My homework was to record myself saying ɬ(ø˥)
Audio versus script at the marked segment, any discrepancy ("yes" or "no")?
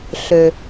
yes